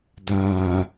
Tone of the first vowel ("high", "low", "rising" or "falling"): low